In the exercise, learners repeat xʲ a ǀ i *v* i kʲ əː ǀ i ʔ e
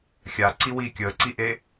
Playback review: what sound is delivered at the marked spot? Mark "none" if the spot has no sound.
w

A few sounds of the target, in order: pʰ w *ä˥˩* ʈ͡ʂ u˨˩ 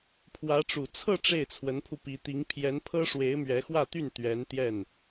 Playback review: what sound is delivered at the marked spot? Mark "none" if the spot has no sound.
ä˧˥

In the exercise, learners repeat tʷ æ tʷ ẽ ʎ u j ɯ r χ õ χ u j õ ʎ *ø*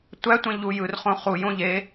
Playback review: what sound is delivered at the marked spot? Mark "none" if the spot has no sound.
e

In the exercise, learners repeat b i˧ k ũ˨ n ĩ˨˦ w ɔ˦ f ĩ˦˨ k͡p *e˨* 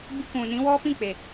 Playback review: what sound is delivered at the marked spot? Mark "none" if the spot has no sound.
e˨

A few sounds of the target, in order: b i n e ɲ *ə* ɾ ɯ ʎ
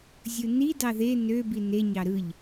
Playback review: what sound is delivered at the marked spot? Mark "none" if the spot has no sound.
ɑ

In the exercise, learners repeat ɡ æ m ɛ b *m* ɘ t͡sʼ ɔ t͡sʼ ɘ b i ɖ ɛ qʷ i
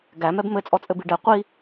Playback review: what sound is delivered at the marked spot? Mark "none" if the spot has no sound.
m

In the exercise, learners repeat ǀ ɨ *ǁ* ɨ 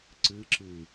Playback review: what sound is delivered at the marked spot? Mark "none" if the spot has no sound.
ǁ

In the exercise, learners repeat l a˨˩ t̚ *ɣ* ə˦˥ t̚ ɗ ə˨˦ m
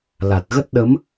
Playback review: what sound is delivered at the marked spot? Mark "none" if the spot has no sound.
ɣ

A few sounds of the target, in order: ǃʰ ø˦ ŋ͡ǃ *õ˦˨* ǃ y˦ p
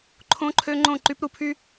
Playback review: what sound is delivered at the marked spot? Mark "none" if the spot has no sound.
õ˦˨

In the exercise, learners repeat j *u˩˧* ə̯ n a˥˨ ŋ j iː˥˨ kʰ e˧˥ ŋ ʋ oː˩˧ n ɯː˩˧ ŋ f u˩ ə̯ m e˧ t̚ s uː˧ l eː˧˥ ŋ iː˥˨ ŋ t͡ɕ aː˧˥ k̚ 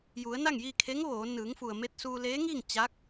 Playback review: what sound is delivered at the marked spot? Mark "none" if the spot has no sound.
u˩˧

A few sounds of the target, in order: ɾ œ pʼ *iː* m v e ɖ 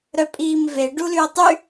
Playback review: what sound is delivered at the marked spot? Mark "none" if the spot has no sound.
iː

